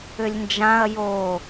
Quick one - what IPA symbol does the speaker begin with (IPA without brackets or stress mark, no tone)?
ʏ